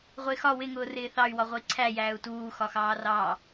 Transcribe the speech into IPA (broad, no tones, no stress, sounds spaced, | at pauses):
ʁʷ ɪː x ɒ w ɪ ŋ ʊː r ɪː θ ɑ y̯ w ɒ ʁʷ ʌ i̯ ǀʰ æ j æː u̯ t uː x ɒ x ɑː r ɑː